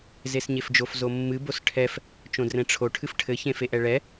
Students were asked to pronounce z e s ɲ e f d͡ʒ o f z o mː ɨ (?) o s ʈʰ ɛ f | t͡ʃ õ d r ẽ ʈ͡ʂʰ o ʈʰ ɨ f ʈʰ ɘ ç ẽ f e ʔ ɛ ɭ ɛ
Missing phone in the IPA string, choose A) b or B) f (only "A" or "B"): A